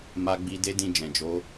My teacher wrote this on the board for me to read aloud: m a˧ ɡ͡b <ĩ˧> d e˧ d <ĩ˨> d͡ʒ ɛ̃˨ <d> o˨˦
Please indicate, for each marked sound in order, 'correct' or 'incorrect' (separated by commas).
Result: incorrect, correct, incorrect